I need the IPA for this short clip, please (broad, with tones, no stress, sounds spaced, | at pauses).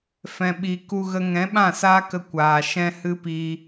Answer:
f ɛ̃˨ ɓ i˨ k u˧ ɣ ə˧ ŋ ɛ̃˨˦ ɓ ã˦˨ s aː˦ k ə˧ kʷ aː˨ ʃ ɛ̃˦ h ɨ˦ p iː˧